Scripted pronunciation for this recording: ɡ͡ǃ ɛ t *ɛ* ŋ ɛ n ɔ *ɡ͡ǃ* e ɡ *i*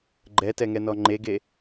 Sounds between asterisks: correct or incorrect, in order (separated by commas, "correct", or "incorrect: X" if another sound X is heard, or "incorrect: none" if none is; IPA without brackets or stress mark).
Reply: correct, incorrect: ŋ͡ǃ, incorrect: e